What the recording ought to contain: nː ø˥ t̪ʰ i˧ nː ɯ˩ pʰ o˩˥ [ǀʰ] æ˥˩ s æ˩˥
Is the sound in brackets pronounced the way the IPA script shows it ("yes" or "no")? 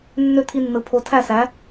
no